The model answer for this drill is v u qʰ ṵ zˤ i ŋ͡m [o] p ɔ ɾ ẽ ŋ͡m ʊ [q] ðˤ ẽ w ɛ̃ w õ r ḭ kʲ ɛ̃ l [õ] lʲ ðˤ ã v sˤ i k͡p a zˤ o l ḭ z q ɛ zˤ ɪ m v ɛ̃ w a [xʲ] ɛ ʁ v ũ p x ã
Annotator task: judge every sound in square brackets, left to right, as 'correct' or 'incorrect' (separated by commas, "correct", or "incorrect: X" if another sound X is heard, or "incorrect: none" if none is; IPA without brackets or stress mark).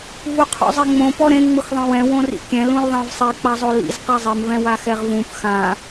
incorrect: õ, incorrect: x, incorrect: ũ, incorrect: x